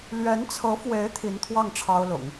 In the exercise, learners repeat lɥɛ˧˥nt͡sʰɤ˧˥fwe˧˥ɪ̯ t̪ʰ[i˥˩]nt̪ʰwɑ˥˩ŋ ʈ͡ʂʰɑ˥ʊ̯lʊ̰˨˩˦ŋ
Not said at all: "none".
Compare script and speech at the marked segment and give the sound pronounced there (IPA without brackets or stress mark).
i˧˥